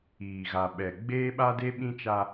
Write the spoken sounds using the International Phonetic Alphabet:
iː˨ ɣ a˨ ɓ ɛ˨ ɡ͡b eː˦ ɓ a˦ d e˦ ɓ ĩ˦ t͡ʃ a˦

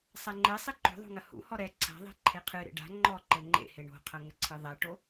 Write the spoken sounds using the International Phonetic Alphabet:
sˤ ɛ ŋ͡ǃ e sˤ i ǃ o̤ ðˤ o̤ ŋ ɐ h ṵ h ɔ ɾ ɛ ǀʰ a̤ ðˤ e̤ ǃʰ e qʰ ɨ ɾ ḛ ɖ a̤ ŋ͡ǃ ɔ ǃ ɘ ŋ͡ǃ ḛ h e ɳ o̤ qʰ ɐ ŋ ɘ ǀʰ ɨ ðˤ ɛ ʈ o

